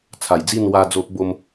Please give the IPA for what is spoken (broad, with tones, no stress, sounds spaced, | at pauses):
t͡sʰ a˨˩ j d͡z i˥˧ n w a˧ d͡z o˦ ʔ b o˦ m